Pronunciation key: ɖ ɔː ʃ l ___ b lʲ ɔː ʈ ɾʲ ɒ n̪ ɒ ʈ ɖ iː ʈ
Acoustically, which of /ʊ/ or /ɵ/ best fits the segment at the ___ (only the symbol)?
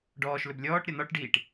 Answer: ɵ